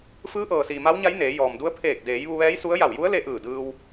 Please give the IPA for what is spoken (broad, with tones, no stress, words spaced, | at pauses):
fɯː˧˥ʔɤː˩siː˩ ma˧˥wɲa˧˥j neː˩˧ jɔː˩mdu˧˥ə̯ pʰeː˧˩k̚deː˩˧j ʋu˧ʋɛː˧˥jsu˧˥ə̯ ja˧˩wju˧˥ə̯le˧ ʔɯː˧˩dɯː˧w